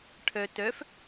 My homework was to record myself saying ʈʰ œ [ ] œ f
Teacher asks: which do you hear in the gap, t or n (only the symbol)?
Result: t